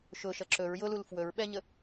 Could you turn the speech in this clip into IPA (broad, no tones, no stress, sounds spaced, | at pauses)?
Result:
ʃ ʊ ʃ ʌ ǁ ɵ ɹ j ʊ l u l f w ɵ ɹ ɓ ɛ ɲ ə